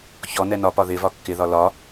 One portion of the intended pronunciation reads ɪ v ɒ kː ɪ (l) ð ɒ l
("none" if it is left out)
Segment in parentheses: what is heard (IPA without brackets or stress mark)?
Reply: none